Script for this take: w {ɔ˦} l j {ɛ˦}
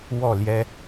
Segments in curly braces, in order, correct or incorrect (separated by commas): incorrect, correct